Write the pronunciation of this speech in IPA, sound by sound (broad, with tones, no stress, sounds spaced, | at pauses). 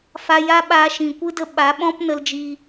f a˧ j a˦ ɓ aː˧ ʃ ĩ˨ kʷ ɨ˦ d ə˧ ɓ a˨˦ ɓ ɔ̃˦ p n ə˧ l d͡ʒ iː˧